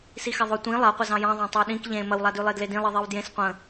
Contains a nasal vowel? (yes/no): yes